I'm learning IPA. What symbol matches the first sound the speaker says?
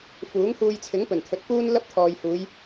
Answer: f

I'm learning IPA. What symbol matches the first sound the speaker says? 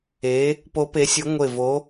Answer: e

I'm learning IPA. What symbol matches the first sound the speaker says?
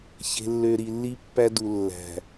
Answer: ç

